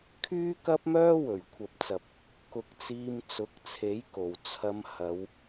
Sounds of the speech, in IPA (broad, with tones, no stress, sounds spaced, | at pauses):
kʰ yː˥ k ɐ˥ p̚ m œː˥ w ɵ˨˩ ɥ kʷʰ ɐ˨ p̚ t͡s ɐ˨ p̚ | k ʊ˧ k̚ t͡s iː˧ m t͡s ʊ˨˥ k̚ t͡sʰ e˨˥ j k o˨˩ w t͡sʰ ɐ˧ m h ɐ˨˧ w